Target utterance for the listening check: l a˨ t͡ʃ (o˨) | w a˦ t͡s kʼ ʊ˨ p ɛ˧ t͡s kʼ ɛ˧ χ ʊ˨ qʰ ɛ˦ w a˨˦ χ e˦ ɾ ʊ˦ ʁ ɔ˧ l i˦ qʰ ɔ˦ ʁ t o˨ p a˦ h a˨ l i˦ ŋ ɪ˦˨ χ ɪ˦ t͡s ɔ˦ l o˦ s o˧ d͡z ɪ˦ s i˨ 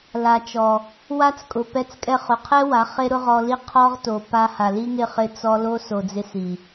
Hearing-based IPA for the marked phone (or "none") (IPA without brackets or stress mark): ɔ˨